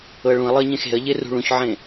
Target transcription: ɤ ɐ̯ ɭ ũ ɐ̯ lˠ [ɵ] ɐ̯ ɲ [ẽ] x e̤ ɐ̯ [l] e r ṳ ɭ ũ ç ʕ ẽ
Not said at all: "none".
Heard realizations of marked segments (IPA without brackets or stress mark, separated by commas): ɤ, ẽ, ʎ